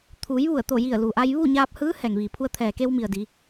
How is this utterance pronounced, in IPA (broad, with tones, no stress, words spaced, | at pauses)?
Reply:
t̪ʰuː˩˧jʋu˧˩ə̯t̪o˧˩ji˧˩ə̯ lu˩ʔa˧jʋu˥˨ ɲaː˧p̚hɯː˧˥ hɛː˩ŋʋiː˩pʰu˧ə̯t̪ʰɛː˩ ke˧wmi˩ə̯ di˩˧